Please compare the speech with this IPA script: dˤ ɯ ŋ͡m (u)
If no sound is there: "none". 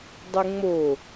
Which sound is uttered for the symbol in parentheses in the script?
o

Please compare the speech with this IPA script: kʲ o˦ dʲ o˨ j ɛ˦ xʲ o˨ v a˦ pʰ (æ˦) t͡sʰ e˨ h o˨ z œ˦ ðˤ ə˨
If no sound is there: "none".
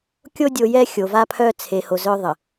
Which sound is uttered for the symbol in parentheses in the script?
œ˦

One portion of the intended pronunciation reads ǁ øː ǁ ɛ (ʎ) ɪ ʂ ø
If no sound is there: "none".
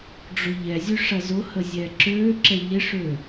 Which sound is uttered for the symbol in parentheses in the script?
ʎ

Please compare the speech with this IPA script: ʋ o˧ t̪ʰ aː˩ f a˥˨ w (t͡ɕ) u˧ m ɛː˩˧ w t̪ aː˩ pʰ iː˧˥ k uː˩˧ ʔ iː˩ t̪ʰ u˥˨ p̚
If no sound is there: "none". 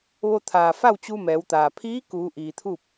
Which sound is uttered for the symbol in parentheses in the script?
t͡ɕ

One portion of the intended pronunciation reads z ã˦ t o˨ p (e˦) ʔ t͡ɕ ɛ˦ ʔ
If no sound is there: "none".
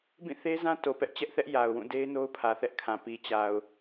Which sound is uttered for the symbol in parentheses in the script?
ɛ˦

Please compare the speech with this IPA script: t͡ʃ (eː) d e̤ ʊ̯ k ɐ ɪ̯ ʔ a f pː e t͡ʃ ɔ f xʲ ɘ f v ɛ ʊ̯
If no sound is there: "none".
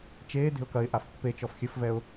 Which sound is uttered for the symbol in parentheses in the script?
eː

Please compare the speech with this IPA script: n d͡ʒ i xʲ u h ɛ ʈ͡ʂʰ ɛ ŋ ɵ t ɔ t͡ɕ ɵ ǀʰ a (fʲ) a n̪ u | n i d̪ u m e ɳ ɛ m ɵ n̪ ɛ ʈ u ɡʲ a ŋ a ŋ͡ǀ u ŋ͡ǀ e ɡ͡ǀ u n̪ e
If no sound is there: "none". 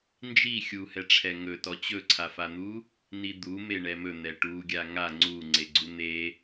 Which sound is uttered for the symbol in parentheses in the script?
f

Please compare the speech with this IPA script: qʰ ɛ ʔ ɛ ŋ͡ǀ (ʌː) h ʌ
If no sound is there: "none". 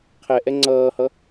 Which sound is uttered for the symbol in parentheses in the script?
ʌː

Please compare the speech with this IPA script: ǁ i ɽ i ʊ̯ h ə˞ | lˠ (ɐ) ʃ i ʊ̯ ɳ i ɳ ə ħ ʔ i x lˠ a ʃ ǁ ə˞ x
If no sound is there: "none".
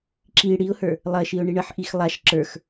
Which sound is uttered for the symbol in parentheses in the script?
ɐ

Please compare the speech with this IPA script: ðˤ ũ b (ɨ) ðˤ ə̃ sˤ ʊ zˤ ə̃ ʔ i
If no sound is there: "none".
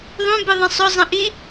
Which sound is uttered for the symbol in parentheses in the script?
ɨ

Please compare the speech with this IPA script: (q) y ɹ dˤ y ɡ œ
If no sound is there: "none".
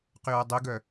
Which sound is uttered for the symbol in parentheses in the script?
q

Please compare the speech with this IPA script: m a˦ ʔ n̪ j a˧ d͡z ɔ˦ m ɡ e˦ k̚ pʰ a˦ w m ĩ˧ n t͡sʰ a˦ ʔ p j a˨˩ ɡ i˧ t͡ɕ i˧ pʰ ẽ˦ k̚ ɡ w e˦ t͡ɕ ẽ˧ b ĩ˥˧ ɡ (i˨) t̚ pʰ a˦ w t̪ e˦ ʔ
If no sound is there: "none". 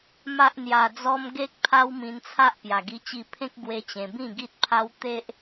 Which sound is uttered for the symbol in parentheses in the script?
i˦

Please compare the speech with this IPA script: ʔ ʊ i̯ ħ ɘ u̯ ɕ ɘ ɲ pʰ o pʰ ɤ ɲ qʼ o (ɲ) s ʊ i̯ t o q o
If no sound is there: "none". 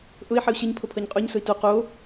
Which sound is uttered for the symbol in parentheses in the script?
ɲ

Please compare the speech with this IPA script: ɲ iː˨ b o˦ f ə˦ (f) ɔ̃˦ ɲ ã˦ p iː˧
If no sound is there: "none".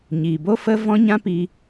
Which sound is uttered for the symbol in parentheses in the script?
v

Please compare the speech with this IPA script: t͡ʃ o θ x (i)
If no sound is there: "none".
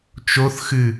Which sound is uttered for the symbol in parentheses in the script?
ɨ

